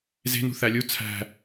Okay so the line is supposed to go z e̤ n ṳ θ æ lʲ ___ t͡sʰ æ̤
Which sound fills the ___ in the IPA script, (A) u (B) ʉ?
A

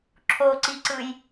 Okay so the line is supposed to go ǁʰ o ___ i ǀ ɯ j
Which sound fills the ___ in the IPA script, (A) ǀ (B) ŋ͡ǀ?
A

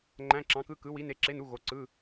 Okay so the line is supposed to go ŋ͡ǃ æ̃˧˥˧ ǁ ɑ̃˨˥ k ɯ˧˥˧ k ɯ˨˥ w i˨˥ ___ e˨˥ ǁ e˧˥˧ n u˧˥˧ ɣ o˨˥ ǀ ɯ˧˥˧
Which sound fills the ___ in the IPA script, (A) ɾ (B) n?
B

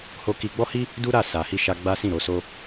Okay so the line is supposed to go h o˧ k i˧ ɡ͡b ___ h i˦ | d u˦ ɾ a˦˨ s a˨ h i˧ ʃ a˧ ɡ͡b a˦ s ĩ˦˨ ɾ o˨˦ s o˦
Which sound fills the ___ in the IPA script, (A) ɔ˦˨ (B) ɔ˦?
B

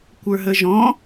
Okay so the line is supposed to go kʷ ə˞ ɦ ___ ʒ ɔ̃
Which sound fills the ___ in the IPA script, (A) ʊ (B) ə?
B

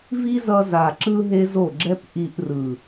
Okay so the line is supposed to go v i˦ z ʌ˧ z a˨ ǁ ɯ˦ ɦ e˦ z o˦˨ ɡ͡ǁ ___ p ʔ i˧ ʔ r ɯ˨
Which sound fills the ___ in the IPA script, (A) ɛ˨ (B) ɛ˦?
B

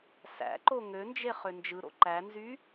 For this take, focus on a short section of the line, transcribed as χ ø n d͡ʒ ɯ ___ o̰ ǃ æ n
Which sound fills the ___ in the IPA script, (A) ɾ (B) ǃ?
A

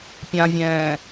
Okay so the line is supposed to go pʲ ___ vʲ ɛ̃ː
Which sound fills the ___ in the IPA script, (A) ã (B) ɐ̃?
A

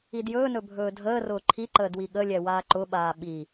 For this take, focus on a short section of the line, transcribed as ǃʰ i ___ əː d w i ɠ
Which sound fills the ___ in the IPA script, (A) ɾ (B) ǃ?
B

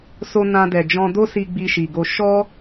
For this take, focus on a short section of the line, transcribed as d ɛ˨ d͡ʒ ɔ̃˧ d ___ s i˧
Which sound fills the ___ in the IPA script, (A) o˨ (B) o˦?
B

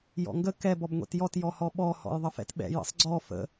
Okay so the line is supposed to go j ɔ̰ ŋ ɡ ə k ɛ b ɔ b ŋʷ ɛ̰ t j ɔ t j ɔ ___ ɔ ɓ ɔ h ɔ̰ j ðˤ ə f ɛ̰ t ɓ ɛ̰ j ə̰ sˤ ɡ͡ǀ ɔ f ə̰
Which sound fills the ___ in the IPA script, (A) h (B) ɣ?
A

